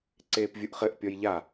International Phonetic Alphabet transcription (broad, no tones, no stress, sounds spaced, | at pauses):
ǀ eː p vʲ u ʔ χ ɘ ʔ pʲ ɔ j ʎ a